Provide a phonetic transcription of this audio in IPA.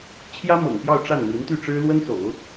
t͡ɕʰ j ä˥ m ɤ̰˨˩ ŋ p j ɑ˥˧ ʊ̯ ʈ͡ʂ a˥˩ n m i˧˥ n t̪ y˥˩ ʈ͡ʂ ɻ̩˥ l w ə˥ n s o̰˨˩˦ ʊ̯

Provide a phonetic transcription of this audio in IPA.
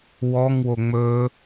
w ɔ ŋ w o ŋ͡m ɵ

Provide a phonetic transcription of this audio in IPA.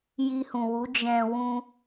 j i˧ h ũ˨ w u˨˦ d͡ʒ ɛ̃˧ w ũ˧

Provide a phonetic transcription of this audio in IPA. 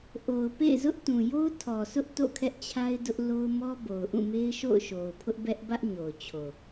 ʔ o˨ ʊ̯ p ḛ˦˨ ɪ̯ z ʊ˦ ʔ t ũ˨ j o˦ ʊ̯ tʰ ɔ˨ s ʊ˦ ʔ t o̰˦˨ kʰ ɛ˦ ʔ t͡ɕʰ a˦ ɪ̯ d ʊ˦ ʔ l o˦ ʊ̯ m ɔ˦ b o˨ ʊ̯ ʔ ũ˦˨ m e˦ ɪ̯ ʃ o̰˦˨ ʊ̯ ʃ o˨ ʊ̯ pʰ ʊ˦ ʔ b ɛ˦ ʔ b ä˦ ʔ ɲ o˨ ʊ̯ t͡ɕʰ o˨

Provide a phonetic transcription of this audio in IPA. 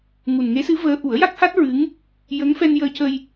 ŋ u˨˩ n ŋ e˧˥ s ɨ˧˥ v əː˧˥ ʔ u˨˩˦ ə̯ j a˦˥ k̚ h a˦˥ t̚ ɹ ɨ˧˥ ŋ | j ə˧˥ ŋ f ɛ˧ n j əː˧ c ə˧ j

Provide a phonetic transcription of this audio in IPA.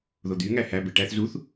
ð o d̪ y ŋ æ h æ b e ʈ æ θ z u θ

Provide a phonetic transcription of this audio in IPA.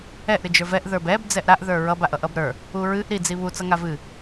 ɛ ʔ ɾ ɨ d͡ʒ ə˞ v ɛ ʔ ð ə˞ b ɛ b d͡z ɛ ʔ ɾ a ʔ ð ə˞ ɹ ʌ b a ʔ ʌ ʔ ʌ b ɾ ə˞ | u ɹ ɨ ʔ ɾ i d͡z i β u t͡s ʌ ŋ a v ɨ

